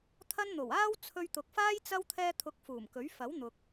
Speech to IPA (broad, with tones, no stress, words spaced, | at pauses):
t̪ʰɐ˥n n̪o˨˩waː˥w t͡sʰɵ˧ɥt̪ʊ˨˥k̚faː˥j t͡sɐ˥w t̪ʰɛː˧t̪ʰʊ˨˥k̚ fuː˨˩mkɵ˨˥ɥ fɐ˨˥wn̪ʊ˨k̚